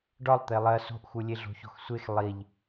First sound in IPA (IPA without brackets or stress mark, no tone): ɖ